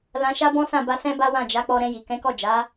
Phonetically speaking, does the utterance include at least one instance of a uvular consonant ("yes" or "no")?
no